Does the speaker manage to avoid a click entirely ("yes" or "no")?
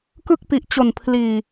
yes